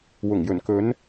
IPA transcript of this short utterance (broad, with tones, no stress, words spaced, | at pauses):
wʊ˨˩ŋjɵ˨˩n kɵ˨˧n